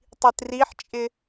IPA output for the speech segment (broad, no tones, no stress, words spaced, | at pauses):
tˤitriħt͡ʃʼɪ